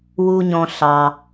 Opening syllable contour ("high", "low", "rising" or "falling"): low